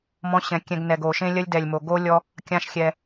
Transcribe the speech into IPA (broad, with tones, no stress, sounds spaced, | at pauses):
m ɔ̃˧ ɕ ɛ̃˨ kʲ ɛ̃˧ ɡ n ɛ˨ ɡ o˨ ʃ ẽ˦ lʲ ɐ˦ lʲ d ɛ˨ lʲ m o˨ ɡ o˦ lʲ ɔ˦ | kʲ ã˦ ʃ xʲ ɛ˧